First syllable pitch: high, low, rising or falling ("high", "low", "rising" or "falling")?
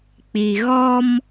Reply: low